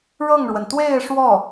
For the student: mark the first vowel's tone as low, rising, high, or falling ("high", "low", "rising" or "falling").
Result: falling